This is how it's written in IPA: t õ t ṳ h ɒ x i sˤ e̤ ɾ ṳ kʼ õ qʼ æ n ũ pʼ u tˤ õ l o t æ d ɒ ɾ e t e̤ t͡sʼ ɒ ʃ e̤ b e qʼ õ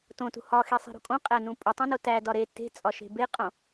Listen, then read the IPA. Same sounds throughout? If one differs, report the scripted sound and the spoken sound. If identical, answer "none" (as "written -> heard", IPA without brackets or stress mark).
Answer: l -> n